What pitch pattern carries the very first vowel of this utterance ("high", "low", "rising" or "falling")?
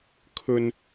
high